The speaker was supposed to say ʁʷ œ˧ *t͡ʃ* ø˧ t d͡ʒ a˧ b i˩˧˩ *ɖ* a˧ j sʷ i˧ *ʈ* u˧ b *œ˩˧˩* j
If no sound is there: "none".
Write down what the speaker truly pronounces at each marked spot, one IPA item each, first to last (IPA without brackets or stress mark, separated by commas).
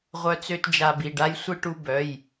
t͡s, ɖ, ʈ, œ˩˧˩